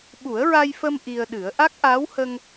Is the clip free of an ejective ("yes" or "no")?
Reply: yes